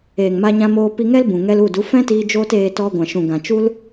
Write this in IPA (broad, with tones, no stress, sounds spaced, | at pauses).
eː˨ ŋ m a˧ ɲ ã˧ m oː˧ p i˧ ŋ ɛ˦ l b ũ˨ ŋ ɛ˧ l u˦˨ d u˨˦ f ɛ̃˦ t iː˧ d͡ʒ oː˦ t eː˧ t ɔ˧ ɡʷ ã˨ ʃ ũ˨ ɡ ã˨ t͡ʃ u˦ l